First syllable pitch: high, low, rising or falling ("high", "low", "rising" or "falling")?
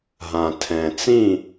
low